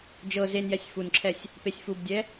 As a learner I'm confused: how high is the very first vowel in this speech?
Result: mid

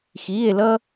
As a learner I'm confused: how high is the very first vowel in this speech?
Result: high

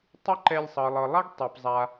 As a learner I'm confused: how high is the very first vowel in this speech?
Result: high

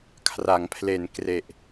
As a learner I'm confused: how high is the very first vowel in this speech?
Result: low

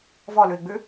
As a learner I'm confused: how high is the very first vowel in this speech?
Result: mid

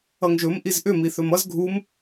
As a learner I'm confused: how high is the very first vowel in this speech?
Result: mid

